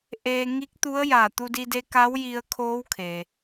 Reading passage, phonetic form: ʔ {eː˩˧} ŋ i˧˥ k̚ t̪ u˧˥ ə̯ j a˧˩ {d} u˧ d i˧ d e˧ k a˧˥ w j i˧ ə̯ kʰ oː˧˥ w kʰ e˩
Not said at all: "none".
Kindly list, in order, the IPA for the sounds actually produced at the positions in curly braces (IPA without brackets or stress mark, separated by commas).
eː˧, t̪